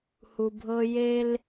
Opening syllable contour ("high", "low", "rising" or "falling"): low